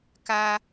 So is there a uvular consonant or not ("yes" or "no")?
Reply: no